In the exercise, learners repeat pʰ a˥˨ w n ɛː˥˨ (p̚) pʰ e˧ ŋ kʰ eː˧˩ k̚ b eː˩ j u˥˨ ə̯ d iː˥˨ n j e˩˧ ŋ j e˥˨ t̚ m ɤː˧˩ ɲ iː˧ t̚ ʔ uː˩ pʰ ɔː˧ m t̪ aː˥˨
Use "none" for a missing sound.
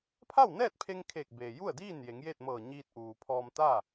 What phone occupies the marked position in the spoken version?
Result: t̚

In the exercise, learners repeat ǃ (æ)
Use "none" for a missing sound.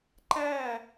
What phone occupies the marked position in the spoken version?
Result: æ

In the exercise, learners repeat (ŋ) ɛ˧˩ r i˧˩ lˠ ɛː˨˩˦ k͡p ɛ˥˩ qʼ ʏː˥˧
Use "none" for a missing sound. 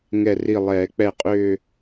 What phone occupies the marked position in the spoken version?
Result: ŋ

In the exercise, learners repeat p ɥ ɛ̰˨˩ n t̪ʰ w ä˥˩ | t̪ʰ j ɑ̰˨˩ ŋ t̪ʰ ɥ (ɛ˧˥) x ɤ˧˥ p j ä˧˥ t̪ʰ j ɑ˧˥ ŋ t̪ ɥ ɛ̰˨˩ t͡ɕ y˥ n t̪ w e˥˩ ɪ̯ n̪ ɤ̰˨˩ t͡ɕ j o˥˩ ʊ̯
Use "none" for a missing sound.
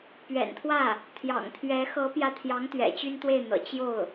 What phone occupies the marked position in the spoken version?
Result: ɛ˧˥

